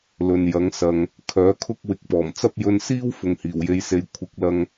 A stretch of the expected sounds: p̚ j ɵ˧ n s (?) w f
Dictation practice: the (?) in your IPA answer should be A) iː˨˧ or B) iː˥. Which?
B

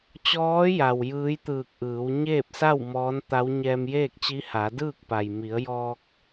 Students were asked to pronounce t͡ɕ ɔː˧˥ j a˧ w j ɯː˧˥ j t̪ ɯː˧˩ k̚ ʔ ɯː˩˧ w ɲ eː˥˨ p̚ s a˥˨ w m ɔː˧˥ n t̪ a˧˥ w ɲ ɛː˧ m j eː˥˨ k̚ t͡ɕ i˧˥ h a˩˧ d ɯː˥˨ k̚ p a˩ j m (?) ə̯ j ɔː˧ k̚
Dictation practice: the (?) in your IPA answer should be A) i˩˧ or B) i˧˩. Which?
A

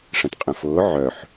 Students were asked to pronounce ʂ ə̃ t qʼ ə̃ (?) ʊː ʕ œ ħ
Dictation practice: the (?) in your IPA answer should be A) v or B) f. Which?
B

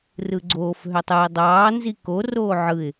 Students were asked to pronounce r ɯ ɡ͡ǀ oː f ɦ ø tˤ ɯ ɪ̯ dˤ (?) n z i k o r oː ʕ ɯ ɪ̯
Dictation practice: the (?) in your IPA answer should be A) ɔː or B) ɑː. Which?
B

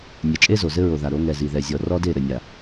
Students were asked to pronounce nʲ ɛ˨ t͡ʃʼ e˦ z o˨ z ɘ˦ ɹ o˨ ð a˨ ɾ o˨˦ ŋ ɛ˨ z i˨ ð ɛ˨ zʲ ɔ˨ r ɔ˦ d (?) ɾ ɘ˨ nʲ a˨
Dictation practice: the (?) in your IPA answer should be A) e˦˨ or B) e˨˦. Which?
A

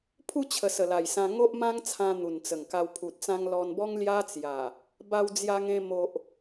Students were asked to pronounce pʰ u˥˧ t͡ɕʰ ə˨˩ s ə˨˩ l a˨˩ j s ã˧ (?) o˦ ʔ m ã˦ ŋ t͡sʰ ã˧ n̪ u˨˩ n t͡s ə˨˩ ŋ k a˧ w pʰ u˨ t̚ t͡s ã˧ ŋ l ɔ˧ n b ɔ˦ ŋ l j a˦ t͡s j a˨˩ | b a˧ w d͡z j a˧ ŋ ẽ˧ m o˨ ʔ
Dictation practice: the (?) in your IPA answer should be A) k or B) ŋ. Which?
B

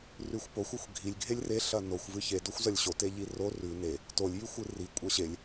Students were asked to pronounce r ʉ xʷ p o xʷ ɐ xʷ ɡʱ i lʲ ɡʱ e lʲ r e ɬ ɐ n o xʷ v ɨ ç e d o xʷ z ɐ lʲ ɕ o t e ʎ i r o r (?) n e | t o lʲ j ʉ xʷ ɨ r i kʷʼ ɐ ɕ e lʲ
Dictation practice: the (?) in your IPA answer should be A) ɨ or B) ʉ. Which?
B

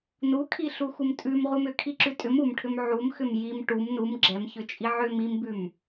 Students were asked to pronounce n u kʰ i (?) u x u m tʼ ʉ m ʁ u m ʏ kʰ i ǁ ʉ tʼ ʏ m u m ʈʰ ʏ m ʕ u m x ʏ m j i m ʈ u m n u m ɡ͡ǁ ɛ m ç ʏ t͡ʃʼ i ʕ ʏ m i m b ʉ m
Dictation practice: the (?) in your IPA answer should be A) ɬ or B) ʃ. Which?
A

